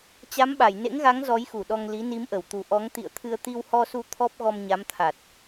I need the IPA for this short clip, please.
t͡ɕ a˨˦ m ɓ a˧˩ j n ḛ˧˥ ŋ ɣ a˨˦ ŋ z ɔ˨˦ j x u˧˩ ɗ ɔ˧ ŋ l i˨˦ n i˨˦ m ʔ ə˧˩ w t̪ u˨˩ ʔ ɔ˨˦ ŋ t̪ ḭ˧˨ ə̯ t̪ʰ ɨ˧ ə̯ t̪ i˧ w h ɔ˧ s u˧ t̪ʰ ɔ˦˥ p̚ ɣ ɔ˧ m ɲ a˨˦ m t̪ʰ a˨˩ t̚

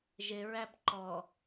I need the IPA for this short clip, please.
ʒ ɪ ɹ æ b ǃ ɔ

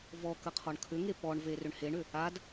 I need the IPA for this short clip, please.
v ɔ k ə qʰ ɔ ɳ kʰ ʏ ŋ e p ɔ ɳ v e r ʏ ɳ h e ɳ ʏ | a d

